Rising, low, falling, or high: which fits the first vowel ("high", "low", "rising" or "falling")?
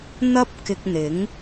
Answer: high